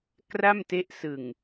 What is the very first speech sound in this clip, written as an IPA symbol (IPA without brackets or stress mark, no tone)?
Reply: k